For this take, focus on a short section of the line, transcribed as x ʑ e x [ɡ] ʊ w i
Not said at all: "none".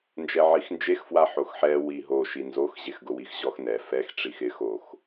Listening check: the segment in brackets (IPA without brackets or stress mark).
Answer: ɡ